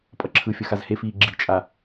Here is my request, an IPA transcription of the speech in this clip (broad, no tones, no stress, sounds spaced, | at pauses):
pʼ ʌ ǁʰ ɯ fʲ ʌ x a z h e f iː ɡ͡ǁ i̤ t͡ʃʼ a